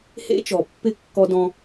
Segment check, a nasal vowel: present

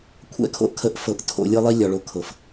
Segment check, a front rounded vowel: absent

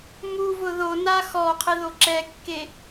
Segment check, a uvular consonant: present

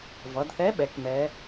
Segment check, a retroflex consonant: absent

